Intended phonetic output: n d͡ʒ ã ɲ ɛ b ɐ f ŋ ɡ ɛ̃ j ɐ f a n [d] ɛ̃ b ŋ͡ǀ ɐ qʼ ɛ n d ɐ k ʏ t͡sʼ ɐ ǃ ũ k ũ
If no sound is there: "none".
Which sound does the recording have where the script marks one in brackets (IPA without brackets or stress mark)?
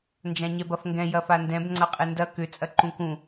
d